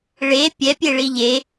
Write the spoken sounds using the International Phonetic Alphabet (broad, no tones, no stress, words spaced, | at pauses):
ɭe pʲɛpʲeɭi ʎe